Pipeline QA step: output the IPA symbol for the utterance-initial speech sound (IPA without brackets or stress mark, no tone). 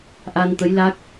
ʔ